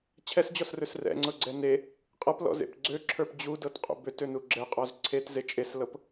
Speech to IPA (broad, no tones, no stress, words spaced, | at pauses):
t͡ɕʰɛsd͡ʑɔsrøs rɛ̰ŋ͡ǀɤɡ͡ǀɛ ne | qʼɤplɔ̰zḛp ɡ͡ǀøǁʰə˞p d͡ʑudɤtqʼṵ bøtønu ɡ͡ǁɛqʼɔz ǀʰetze t͡ʃʼeslɤp